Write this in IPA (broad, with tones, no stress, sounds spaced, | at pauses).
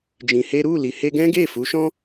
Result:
d͡ʒ ĩ˧ h e˦ ɾ u˦˨ l i˨ h e˧ ɡ ɛ̃˦ ɡ e˦˨ f u˨˦ ʃ ɔ̃˦